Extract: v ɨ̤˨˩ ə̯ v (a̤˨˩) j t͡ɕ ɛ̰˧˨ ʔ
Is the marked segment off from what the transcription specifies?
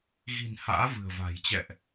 no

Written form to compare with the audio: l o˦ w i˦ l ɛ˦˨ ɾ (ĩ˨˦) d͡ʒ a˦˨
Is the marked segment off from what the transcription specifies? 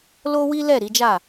yes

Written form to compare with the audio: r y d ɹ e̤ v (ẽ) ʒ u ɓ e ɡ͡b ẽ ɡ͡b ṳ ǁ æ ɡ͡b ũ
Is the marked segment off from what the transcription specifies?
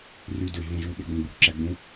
no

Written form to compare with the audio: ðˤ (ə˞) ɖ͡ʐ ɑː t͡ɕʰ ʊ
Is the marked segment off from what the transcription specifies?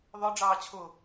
no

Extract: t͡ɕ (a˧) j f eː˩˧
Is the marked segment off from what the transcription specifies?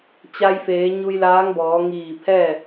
no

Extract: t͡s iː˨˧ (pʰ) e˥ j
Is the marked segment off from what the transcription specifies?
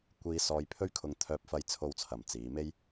yes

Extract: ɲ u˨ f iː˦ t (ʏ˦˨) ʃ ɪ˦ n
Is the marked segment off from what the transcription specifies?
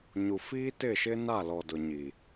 yes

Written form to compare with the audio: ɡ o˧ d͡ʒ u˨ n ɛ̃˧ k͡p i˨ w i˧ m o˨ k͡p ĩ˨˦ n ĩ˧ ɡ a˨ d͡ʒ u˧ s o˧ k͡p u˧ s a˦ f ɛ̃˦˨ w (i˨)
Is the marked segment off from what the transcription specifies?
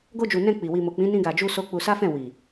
no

